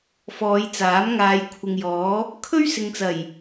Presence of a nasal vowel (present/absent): absent